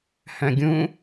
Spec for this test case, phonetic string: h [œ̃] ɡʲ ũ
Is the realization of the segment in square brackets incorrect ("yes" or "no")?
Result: no